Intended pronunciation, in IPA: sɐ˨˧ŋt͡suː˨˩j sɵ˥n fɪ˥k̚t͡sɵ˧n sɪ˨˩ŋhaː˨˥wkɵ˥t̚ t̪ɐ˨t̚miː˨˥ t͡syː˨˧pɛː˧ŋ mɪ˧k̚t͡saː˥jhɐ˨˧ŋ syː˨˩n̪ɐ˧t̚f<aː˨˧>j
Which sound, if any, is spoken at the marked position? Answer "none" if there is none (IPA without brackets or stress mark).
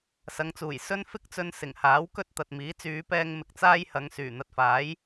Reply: aː˨˥